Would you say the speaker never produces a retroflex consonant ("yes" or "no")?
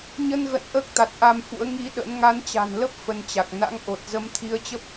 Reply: yes